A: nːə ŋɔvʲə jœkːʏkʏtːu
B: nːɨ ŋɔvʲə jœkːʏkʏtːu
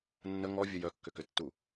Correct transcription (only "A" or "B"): A